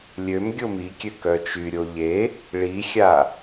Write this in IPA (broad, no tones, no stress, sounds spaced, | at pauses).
lʲ ø m ɡʲ o m i kʲ ø k œ t͡ʃ y ɾʲ o ʎ e | ɭ i xʲ a